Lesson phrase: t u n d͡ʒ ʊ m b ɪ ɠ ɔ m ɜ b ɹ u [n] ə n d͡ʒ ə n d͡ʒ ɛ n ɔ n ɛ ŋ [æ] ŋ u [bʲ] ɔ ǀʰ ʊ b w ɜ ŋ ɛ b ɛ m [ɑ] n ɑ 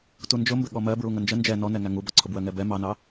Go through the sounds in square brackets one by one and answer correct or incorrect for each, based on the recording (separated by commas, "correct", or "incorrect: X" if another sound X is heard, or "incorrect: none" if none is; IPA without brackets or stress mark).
incorrect: ŋ, correct, incorrect: b, correct